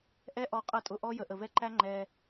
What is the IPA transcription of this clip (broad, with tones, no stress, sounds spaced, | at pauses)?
ʔ ɛ˦ ʔ ɔ˧ qʼ ʌ˦˨ tʼ ʊ˧ ʔ ɔ˦ j ə˨ ʔ ə˨ v ɛ˦ ǃ æ˦ ŋ͡ǃ ɛ˧